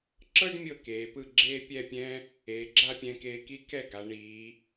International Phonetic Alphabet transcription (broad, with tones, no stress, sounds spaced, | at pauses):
ǁ ɤ˥ ɖ mʲ ɤ˥˧ k eː˩˧ p ɯ˥˧ ɡ͡ǁ eː˥ pʲ ɛ˥˧ pʲ ɛ̃˥ | eː˩˧ ɡ͡ǁ a˥˧ pʲ ɛ̃˧ k eː˧ k i˥ k ɛ˥˧ ɡ a˩˧ ɳ iː˩˧